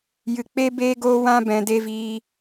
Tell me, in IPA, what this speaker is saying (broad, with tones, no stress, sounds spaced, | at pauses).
j ɨ˨ k͡p e˦ b eː˦ ɡ oː˧ w ã˧ b ɛ̃˨ d e˧ v iː˧